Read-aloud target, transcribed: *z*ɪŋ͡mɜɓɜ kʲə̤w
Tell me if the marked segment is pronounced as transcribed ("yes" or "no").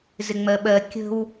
yes